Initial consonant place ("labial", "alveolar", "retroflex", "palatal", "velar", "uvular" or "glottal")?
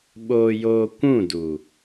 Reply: labial